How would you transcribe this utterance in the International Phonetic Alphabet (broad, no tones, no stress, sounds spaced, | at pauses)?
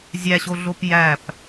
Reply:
zʲ æ ɕ o ɮ o p j æ p